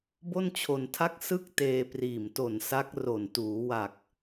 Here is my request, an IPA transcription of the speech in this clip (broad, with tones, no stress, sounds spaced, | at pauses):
b o˥˩ n t͡ɕʰ o˧ n tʰ a˥˩ k̚ s ɯ˥˩ k̚ t eː˧ p r iː˨˩ m t o˨˩ n s a˦˥ k̚ r o˨˩ n t uː˩˦ w a˨˩ k̚